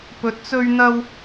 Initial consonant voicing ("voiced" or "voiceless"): voiceless